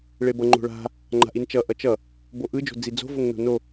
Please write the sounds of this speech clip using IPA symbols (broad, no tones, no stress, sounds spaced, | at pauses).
ɭ e b ʌ ŋ͡ǃ o̤ ɭ a̤ | ŋ͡ǃ a̤ ʔ i n t͡ʃ ʌ ʔ ʌ t͡ʃ ʌ | b o ʔ ɯ d͡ʒ o̤ d͡z i d͡z o̤ v o ŋ n o̤ n o